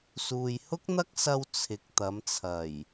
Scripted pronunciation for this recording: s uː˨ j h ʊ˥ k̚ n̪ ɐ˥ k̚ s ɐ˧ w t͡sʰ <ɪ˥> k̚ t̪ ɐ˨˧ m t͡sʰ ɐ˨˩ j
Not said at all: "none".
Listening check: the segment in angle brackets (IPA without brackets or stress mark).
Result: ɪ˨˥